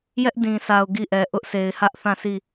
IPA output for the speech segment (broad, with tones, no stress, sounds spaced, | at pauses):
j ɛ˦ ʔ d ĩ˨ s a˨ ʊ̯ ɡ i˦˨ ʔ ɛ˨ ʔ ʊ˦ ʔ sʰ e˨ ɪ̯ h ä˦ ʔ θ ã˦˨ sʰ i˦˨